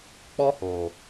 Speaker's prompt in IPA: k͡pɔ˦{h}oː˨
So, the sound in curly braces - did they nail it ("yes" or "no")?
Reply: yes